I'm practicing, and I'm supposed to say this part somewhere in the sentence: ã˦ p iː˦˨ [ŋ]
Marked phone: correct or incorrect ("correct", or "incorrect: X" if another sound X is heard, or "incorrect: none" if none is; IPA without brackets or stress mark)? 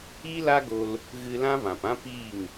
correct